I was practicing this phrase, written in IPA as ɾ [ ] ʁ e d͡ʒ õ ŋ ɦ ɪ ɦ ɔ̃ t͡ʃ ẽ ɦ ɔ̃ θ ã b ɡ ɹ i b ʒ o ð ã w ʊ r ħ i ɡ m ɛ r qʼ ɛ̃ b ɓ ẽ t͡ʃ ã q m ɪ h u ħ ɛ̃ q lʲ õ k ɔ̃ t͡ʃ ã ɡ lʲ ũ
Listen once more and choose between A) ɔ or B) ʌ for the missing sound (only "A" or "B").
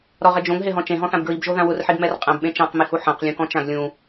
A